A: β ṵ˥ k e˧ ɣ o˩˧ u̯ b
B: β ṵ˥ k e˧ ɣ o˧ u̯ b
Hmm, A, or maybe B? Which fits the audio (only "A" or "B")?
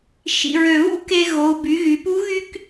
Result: A